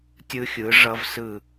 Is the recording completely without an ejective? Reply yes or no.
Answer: yes